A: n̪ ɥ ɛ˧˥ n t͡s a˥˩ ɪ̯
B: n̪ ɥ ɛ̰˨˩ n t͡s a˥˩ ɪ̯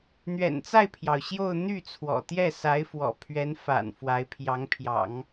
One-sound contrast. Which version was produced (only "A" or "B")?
B